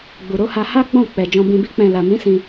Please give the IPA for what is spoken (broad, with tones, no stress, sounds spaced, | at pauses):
ɡ͡b u˨ ɾ o˨˦ h a˧ h a˦ ɡ͡b ɔ̃˦˨ k͡p ɛ˨ d͡ʒ ɔ̃˧ b ĩ˧ b i˦ k͡p ɛ̃˧ l a˨ m ĩ˨˦ s ĩ˧